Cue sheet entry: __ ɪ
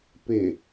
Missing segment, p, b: p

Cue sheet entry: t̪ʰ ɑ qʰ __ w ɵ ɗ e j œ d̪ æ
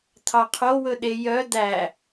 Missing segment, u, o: o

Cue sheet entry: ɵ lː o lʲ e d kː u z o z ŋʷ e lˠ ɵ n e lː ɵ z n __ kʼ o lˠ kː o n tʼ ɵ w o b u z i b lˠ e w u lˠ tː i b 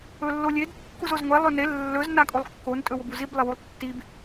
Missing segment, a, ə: a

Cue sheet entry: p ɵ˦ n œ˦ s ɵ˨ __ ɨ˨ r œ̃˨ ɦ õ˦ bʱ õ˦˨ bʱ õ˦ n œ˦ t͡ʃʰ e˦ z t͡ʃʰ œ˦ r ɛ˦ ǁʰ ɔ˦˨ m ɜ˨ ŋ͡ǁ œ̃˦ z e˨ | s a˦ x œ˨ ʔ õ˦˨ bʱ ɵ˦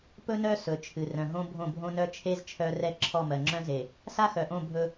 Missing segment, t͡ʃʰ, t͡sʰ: t͡ʃʰ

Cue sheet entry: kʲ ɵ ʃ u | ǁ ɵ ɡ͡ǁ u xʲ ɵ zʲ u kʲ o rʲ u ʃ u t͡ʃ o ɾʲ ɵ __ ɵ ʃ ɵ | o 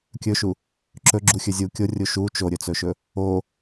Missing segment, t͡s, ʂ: t͡s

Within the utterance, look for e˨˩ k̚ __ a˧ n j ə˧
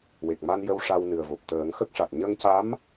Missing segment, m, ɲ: m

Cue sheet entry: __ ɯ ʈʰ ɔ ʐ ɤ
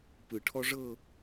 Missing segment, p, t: p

